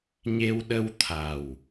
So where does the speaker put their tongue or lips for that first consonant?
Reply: palate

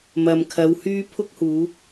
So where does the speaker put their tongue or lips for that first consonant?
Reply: lips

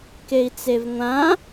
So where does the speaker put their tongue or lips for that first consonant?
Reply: velum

